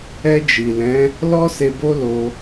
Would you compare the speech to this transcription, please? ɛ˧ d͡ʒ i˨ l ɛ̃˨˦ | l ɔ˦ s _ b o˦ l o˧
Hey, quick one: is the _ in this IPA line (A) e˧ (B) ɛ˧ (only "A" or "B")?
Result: A